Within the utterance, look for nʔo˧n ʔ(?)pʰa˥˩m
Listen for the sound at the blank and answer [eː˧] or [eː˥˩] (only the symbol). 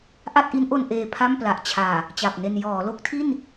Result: eː˧